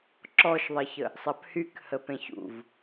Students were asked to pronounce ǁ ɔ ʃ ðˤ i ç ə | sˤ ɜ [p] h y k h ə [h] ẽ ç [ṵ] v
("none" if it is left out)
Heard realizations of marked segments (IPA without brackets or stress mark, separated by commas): p, p, ṵ